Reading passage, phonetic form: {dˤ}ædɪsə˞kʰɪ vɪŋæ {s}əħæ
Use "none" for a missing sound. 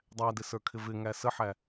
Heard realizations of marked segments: dˤ, s

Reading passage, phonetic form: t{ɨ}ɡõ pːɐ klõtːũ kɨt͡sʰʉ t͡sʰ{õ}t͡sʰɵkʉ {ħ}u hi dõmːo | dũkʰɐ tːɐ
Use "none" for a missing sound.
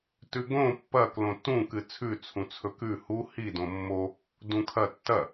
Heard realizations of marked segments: ʉ, ũ, h

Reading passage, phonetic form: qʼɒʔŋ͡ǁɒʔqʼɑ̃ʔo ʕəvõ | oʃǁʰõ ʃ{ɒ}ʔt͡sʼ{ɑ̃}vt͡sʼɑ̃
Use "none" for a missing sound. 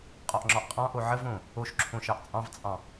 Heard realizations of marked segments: ɑ, ɑ̃

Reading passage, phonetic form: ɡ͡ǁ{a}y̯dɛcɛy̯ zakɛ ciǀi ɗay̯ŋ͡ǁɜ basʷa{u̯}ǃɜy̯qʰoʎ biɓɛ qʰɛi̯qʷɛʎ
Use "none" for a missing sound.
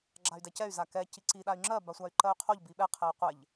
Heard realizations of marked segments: a, y̯

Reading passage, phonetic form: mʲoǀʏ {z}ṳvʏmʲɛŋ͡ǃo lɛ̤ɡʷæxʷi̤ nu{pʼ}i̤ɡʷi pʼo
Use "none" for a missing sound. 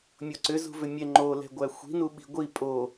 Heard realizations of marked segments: z, ɓ

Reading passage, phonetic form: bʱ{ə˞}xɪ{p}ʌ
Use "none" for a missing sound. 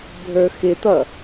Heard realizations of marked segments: ə˞, t̪

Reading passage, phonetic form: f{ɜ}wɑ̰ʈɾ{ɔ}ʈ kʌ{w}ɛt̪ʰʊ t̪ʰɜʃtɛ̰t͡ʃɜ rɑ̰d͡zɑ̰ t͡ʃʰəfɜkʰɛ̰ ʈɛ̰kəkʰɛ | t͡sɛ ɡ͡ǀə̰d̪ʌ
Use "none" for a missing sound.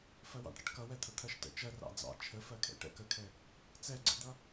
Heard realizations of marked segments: ɜ, ʌ, w

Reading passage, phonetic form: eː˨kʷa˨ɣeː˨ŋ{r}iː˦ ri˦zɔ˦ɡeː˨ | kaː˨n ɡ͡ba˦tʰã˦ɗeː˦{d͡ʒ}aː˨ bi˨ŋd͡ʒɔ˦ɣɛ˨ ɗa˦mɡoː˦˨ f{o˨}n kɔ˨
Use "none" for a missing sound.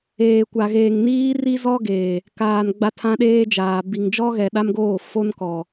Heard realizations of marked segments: n, d͡ʒ, o˦

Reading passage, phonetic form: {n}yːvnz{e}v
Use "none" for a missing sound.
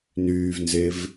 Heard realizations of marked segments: n, e

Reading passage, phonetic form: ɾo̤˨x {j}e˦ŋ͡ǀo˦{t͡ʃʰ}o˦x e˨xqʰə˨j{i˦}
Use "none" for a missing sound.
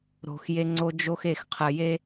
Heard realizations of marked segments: j, d͡ʒ, e˦

